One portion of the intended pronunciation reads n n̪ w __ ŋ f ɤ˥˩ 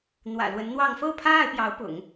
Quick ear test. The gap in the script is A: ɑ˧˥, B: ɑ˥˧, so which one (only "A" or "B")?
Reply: B